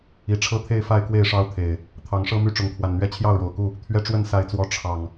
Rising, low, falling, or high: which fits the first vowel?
rising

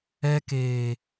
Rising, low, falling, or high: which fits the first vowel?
low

